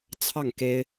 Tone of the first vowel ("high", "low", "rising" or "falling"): falling